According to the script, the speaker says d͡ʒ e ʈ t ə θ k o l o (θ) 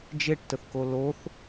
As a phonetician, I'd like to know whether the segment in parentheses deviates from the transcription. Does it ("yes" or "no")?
no